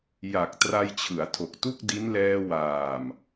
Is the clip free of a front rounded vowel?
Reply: yes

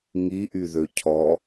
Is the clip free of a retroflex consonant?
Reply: yes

